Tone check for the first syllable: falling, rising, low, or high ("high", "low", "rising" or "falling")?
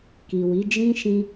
low